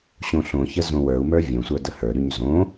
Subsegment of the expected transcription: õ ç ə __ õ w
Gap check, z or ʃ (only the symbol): z